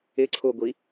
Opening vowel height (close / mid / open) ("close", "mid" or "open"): close